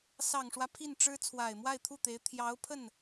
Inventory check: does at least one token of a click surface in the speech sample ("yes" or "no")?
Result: no